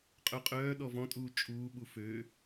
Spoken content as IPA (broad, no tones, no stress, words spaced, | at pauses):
qʼœqʼœː ɗɔvɔ̃tʼuː t͡ʃʼuːɓu fø